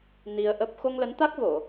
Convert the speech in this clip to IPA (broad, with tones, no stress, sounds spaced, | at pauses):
n i˧ ə̯ ʔ ə˦˥ p̚ x o˧ ŋ l ə˨˦ n t̪ a˦˥ k̚ v o˧˩˨